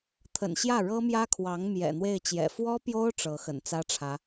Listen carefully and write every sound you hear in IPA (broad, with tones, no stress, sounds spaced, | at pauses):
t̪ʰ ə̰˨˩ n ɕ j ä˥˩ ɻ ɤ˥ m j ä˥ kʰ w ɑ˧˥ ŋ m j ɛ̰˨˩ n̪ w e˥˩ ɪ̯ t͡ɕ j ɛ̰˨˩ f w ɔ˥ p j o˥ ʊ̯ ʈ͡ʂ ɤ˧˥ x ə̰˨˩ n t͡s ä˥ ʈ͡ʂʰ ä˧˥